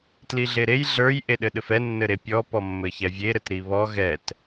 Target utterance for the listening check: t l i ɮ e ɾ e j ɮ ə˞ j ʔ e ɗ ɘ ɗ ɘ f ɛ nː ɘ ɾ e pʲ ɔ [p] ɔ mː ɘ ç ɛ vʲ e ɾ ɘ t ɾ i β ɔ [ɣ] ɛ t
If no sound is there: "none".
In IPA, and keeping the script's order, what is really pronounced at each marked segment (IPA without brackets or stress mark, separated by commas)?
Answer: p, ɣ